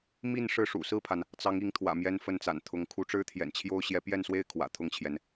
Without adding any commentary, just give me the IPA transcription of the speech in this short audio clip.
m i˥˧ n ʂ ɻ̩˥˩ ʂ ṵ˨˩ s ɹ̩˥˩ pʰ a˩ n | t͡s ɑ˧˥ ŋ i˧˥ ŋ t̪ʰ w ä̰˨˩ m j ɛ˥˧ n f ə˥˩ n t͡s a̰˨˩ n t̪ʰ ʊ˧˥ ŋ kʰ u˧˥ ʈ͡ʂ ɻ̩˥ t̪ʰ j ɛ̰˨˩ n t͡ɕʰ j o˥ ʊ̯ ɕ j ɛ˧˥ p j ɛ˥˧ n s w e˥˩ ɪ̯ kʰ w ä̰˨˩ t̪ʰ ʊ˥˩ ŋ t͡ɕʰ j ɛ˩ n

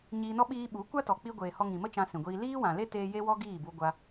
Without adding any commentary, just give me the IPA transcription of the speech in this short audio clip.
ɲ iː˧ n ɔ˦ ɓ iː˦ ɓ u˨˦ kʷ a˦ t ɔ˨ k͡p i˧ ɡʷ eː˨ h ɔ˧ ŋ ĩ˨ m ə˦ t͡ʃ ã˧ s ĩ˨ ɡʷ iː˧ l iː˦ w ã˨ l e˦ t eː˦ j e˦ w ɔ˦ ɡ iː˦˨ b u˧ ɡʷ a˧

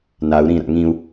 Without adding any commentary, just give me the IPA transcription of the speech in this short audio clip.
n a u̯ ɾ ĩ ɾ a̰ ŋ ĩ u̯

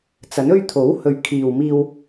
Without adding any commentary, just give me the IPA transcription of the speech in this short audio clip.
t͡s ɐ˨˥ n ɵ˥ ɥ t̪ʰ o˨˥ w h ɵ˨ ɥ kʰ iː˨ w m iː˧ w

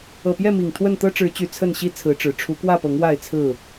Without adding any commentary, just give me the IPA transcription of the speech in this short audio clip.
ɤ˨˩ p j ɛ˥˨ m i˨˩ ŋ t̪ʰ w ə˥˨ n t̪ ɤ˦ ʈ͡ʂ ɻ̩˨˦ t͡ɕ y˨˩ t͡sʰ ə˥˨ n ɕ i˦ t͡sʰ ɹ̩˨˦ ʈ͡ʂ ɻ̩˨˩ ʈ͡ʂʰ u˨˦ k w ä˥˨ p ɤ˨˦ ŋ w a˥˨ ɪ̯ t͡sʰ ɹ̩˥˨

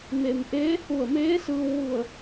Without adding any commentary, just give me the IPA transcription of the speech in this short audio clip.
m e˩ m ʔ eː˧˥ h u˧˩ ə̯ m eː˧˥ s ɯː˧ w ʋ u˧˩ ə̯

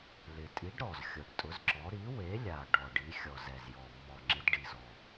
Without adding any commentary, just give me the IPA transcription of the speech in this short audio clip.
l ɪ˨˩ tʼ i˨˥ ɖ ɾ ɔ˨˩ z xʲ ʊ˨˩ ɖ tʼ ʊ˨˥ z ǁ ɔ˨˥ ɾ i˨˥ w e˨˥ lʲ a˨˩ ɖ ɔ˨˩ ɖ i˨˥ xʲ ɔ˨˩ z ɛ˨˩ z j ɔ˨˩ mː ɔ˨˩ ŋ͡ǁ ɪ˨˥ d ɖ i˨˩ z ɔ˨˩

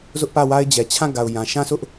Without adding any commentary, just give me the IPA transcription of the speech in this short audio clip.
z ʊ˦ ʔ p ä˦˨ w a˦ ɪ̯ d͡ʑ ɛ˨ t͡ɕʰ ã˦˨ ɡ a˨ ʊ̯ j ã˨ ʃ ã˦ s ʊ˦ ʔ

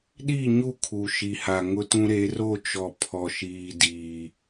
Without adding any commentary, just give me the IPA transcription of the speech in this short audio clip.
ɗ i˦˨ ɲ u˦˨ kʰ u˨ ʃ i˨ h a˨ ŋ ʊ˦ t ũ˦ ɾ e˨˦ r o˦˨ t͡ʃ ɔ˨ pʰ ɔ˨ ʃ iː˨ d iː˨

